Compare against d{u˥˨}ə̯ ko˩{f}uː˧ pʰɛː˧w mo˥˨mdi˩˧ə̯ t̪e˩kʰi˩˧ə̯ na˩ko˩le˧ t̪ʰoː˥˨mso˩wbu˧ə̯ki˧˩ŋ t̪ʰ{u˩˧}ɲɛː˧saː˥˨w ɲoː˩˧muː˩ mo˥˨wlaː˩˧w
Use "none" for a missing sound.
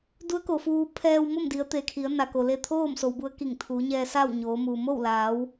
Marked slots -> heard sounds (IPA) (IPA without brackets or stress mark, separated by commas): u˧˥, f, uː˩˧